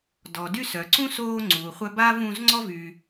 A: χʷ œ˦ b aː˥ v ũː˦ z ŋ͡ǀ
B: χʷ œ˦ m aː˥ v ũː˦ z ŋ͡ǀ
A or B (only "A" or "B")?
A